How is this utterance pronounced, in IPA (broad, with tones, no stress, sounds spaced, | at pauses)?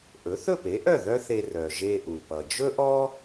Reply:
ʔ ɵ˩˥ θ ɵ˥˩ p e˩˥ ʔ œ˥˩ ð œ˥ θ e˧ r œ˩ ʒ e˧ ʔ u˩ p ʌ˩ d͡ʒ ɵ˥ ʔ ɔ˥